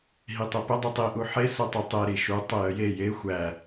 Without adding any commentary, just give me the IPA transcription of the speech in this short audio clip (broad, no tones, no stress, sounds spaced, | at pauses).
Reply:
ɦ i tˤ e p ə dˤ u tˤ i ʔ u ħ e s u tˤ ə tˤ e ɾ i ʃ u tˤ ə j ə j e j e xʷ æ